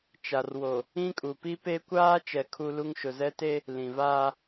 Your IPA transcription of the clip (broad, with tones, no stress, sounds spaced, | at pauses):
t͡ʃ a˨ r w o˨ | ĩ˦ kʼ u˨ p i˦ p e˦ kʷ aː˦ t͡ʃ ɛ˨ kʰ u˦ l u˦ ŋ ʃ ʊ˨ z ɛ˦ t e˦ | l ĩ˨ v aː˦